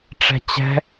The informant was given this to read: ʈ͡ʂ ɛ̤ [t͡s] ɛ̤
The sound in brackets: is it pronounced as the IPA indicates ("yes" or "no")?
no